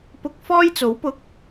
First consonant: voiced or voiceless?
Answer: voiceless